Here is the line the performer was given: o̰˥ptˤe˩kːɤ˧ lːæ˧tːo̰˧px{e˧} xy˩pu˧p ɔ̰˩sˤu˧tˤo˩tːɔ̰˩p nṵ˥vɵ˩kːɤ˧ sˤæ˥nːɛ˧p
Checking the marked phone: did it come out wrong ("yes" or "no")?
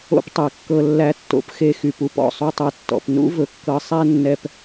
no